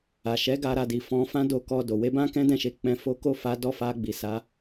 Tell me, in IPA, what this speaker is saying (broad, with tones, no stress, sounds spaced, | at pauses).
a˨ ʃ ɛ˨˦ ɡ a˧ ɾ a˧ d i˨ f ɔ̃˧ f ã˦ d o˧ k ɔ˧ d o˨ w e˧ b ã˧ k ɛ̃˦ d ɛ̃˦˨ ʃ e˨˦ k͡p ɛ̃˧ f o˦ k o˦˨ f a˨˦ d ɔ˧ f a˧ ɡ͡b i˨ s a˨˦